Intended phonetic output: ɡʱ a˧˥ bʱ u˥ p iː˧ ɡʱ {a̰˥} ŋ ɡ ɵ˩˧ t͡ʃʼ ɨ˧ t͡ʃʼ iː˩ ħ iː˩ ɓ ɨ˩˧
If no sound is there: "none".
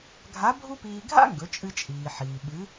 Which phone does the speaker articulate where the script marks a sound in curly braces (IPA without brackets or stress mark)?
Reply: a̰˥